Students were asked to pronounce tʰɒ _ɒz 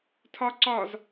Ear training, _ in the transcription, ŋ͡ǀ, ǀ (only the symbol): ǀ